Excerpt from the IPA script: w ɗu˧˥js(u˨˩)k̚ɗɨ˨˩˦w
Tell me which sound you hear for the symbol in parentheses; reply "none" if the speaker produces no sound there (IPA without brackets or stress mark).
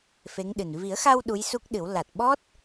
u˦˥